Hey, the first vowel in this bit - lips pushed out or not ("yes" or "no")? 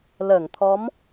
no